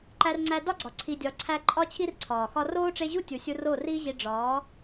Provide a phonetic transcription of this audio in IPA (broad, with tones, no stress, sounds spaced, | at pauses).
ǃ æ˧ r ŋ͡ǀ æ˧ d ɒ˦ ɡ͡ǀ ɒ˨ ǀʰ i˨ dʲ ɒ˨ ǀʰ æ˧ ǃʼ ɒ˦ t͡ɕʰ i˦ r ǀʰ ɒː˨ x ɒ˦ r oː˦ ʈ͡ʂ e˧ ʑ u˦ tʲ u˨ sʲ u˧ r o˦˨ r iː˦ ʑ i˧ ɖ͡ʐ ɒː˨˦